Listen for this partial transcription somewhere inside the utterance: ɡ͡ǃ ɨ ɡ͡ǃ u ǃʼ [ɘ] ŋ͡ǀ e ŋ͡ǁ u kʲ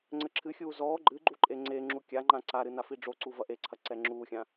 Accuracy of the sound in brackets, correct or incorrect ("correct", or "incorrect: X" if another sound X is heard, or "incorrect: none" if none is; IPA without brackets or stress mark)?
incorrect: e